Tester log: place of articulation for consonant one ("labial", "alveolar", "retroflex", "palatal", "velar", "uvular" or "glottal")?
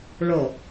retroflex